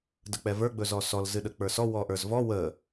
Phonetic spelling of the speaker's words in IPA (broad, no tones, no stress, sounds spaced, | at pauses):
d ə k͡p ɛ v ə˞ ɡ͡b ɵ z ɔ s ɔ l z ɨ ɗ ə k͡p ə˞ s ɔ w ɔ ʔ ə˞ z v ɔ w ə